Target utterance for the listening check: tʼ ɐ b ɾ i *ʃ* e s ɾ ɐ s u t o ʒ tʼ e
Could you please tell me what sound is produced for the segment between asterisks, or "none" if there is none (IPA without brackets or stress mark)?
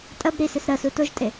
s